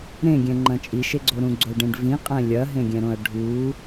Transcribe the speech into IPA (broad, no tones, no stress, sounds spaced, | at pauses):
ɾ ẽ ɡʲ ɛ̃ ŋ͡ǃ ɐ̃ t͡ʃʼ i ʃ e ɡ͡ǀ o ɾ ũ ɡ͡ǀ o ɖ ẽ ɖ v ĩ qʼ ɛ̃ lʲ ɐ ɦ ẽ ɡʲ ɛ̃ ɾ õ ɐ̯ ɖʱ u